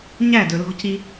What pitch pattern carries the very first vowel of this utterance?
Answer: falling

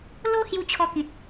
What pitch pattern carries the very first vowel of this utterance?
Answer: high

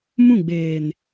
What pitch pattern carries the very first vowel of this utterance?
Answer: falling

